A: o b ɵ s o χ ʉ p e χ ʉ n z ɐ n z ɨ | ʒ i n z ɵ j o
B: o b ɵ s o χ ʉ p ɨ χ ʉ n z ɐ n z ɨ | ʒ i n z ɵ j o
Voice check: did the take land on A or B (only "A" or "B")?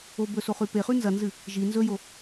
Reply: A